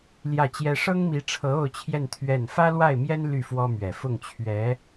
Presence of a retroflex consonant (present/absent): present